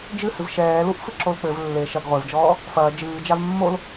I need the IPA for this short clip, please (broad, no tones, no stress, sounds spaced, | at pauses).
d͡ʒ ɨ h ɨ v ʃ ɛː l u ʔ f ɨ ǁ o l k͡p ɘ v lː e ʃ ɐ ɡ ʁʷ e v d͡ʒ ɔː | f ɐː d͡ʒ ɨː d͡ʒ a v mː o l